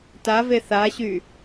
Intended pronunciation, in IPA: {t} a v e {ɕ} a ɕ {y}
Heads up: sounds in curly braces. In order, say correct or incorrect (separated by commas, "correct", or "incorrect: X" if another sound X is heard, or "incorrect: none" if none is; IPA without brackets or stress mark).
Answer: correct, incorrect: θ, correct